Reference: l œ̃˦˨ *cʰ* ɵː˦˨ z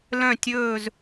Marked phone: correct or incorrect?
incorrect